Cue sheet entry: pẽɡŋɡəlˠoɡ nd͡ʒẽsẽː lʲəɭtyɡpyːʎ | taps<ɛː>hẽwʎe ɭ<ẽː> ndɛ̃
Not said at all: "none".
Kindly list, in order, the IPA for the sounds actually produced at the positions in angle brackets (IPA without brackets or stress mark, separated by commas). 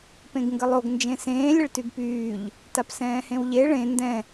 ɛ̃ː, ẽ